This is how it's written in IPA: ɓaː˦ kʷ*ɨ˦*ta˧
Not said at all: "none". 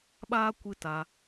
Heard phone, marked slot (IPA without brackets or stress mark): ɨ˦